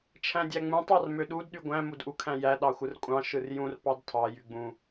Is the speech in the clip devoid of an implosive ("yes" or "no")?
no